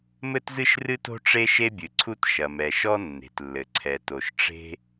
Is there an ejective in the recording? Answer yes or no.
no